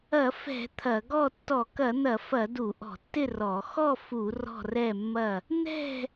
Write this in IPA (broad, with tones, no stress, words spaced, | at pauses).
ɐ˧˩˧fɛ̤˧˩˧ t̪ʰɐ˧˩˧ɡɔ˥˨ tːɔ˧˩˧kɐ˧˩˧n̪ɐ˧˩˧fɐ˧˩˧ du˧˩˧ʔɔ̤˧˩˧tːɪ˥˨ rɔ˧˩˧ xɔ˥˨fu˧˩˧ rɔ̤˥˨rɛ˥˨mːɐ˥˨ | n̪ɛ̤˥˨